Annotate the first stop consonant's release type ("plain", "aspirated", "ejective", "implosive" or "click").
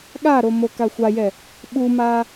implosive